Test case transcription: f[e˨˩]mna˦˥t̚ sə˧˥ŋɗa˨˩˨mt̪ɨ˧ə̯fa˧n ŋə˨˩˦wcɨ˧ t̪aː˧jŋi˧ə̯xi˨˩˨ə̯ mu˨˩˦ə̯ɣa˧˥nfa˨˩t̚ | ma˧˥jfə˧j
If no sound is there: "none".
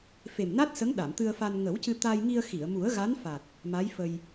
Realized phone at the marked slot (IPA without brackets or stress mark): e˨˩